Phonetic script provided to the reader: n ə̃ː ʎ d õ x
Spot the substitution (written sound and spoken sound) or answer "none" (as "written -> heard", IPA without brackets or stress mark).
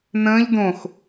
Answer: none